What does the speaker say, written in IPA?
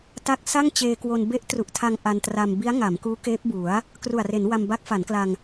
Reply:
ta˦˥k̚sa˥˩ŋt͡ɕeː˧kwo˧n be˦˥ʔtru˨˩ʔtʰa˧ŋ ʔa˧ntra˧m bi˦˥a̯ŋa˩˦m kuː˦˥keː˦˥p̚bu˩˦a̯ | kru˨˩a̯re˩˦nwa˧m ba˦˥k̚fa˩˦nkla˧ŋ

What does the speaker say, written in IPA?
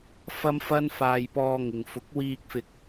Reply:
fɐ˥mfɐ˥n faː˧jpɔː˧ŋɪ˨ŋ fʊ˨˥k̚wiː˧k̚fɪ˧k̚

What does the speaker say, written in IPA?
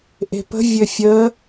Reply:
ʔe̤pə̤ vʲɘfʲə

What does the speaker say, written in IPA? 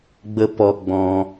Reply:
ɡ͡bə˦ pɔ˧ɡ͡bɔ̃˧

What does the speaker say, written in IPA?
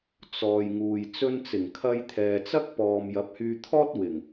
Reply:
t͡sɔː˨jŋuː˨j t͡sɵ˧nt͡sɪ˨˩ŋkʰɐ˧j t̪ʰɛː˨t͡sɐ˥k̚ pɔː˨m jɐ˨˥p̚hyː˧t̪ʰɔː˥t̚ wɪ˨˩ŋ

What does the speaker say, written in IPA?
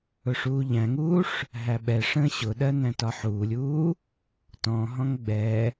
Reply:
ʊʂuːʎæ̃ŋuːʂ | ɦæɓɛʂə̃ː ɕʊɗɜ næ̃tɒħuːlʲuː | tɔ̃ɦɔ̃ŋ ɡ͡bɛ

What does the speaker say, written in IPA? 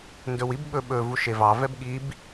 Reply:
ndɵwib ɓɵ ɓɵ vuʃevɑ vɛbɠib

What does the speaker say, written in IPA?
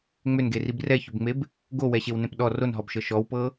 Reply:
ŋ͡mʏnɡerib rɛçʏbŋ͡meb | ɡowɛɕewnẽp ɗɔ ronɦɔbʃɤ ʃɔwpɤ

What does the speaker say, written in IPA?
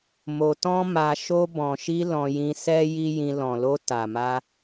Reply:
mo˧tɔ̃˦ma˧ ʃo˧bɔ̃˨ʃi˧ lɔ̃˧jĩ˧sɛ˦ ji˦jĩ˧ lɔ̃˨lo˧ ta˨ma˧

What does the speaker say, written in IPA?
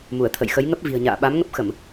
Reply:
mu˧˩ə̯t̪ʰə̰˧˨jxə˨˦j ŋə˦˥p̚vi̤˨˩ə̯ɲa̰ː˧˨ ɓa˨˦m ŋə˦˥p̚xə˧˩˨m

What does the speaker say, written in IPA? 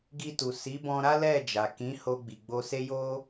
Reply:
ɡi˧tu˨ si˨˦bɔ̃˧ ɾa˦lɛ˦˨ d͡ʒa˨kĩ˨˦ ho˧ɡ͡bi˨ ɡ͡bo˧se˦ jo˦

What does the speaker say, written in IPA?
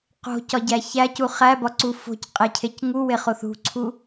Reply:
qo̤cɒɟæ çæcu χæbɒǀu fo̤cqʼecʰec ŋuweχoθ ṳǀʰu

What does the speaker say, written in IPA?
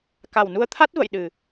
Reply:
ka˨˩wnu˧ə̯t̪ʰa˦˥t̚ və̰˧˨jɗɨ˨˩

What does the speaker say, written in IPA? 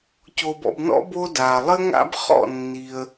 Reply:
co˧bɔ̰˥˧bnɔ̰˥ bo˥da˧ lˠɘ˥ŋa̰˥bχɔ̰˥˧ nːi˧ə̯

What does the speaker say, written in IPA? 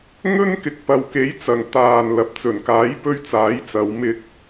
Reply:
ŋɵ˥nkɪ˨k̚ pɐ˨wke˨˥jt͡sɐ˨˩ŋ t̪aː˨˩n lɐ˨p̚ t͡sɵ˨˩nkaː˨˥jpɵ˧ɥ t͡saː˨˥jt͡sɐ˨˧wmɪ˧k̚

